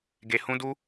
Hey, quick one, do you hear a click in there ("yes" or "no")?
no